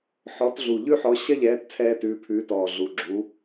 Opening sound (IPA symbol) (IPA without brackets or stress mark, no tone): ħ